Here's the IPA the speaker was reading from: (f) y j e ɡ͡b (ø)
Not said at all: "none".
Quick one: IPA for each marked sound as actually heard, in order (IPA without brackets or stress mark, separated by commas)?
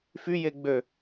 f, ø